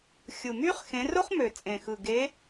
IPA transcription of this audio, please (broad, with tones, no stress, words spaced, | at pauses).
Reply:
xʲɯ˨˩myː˥χ xẽ˨˦ro˥χmø˨˩ t͡sʼẽ˨˩xɯ˨˩ ɡe˨˦